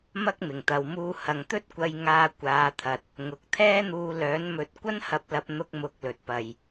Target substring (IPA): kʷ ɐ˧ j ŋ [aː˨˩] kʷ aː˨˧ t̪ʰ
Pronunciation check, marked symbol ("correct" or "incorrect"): incorrect